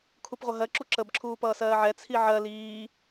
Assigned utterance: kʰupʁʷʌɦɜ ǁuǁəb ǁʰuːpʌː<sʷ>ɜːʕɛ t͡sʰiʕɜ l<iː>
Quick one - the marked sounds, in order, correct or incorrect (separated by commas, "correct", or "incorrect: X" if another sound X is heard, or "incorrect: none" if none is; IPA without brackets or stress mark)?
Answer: incorrect: s, correct